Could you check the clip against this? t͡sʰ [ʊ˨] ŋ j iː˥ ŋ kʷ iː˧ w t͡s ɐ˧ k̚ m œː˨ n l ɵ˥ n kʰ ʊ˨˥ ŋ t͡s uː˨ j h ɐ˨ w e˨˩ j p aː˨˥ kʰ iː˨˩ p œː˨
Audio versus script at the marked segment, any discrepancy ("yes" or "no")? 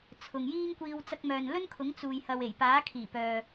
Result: no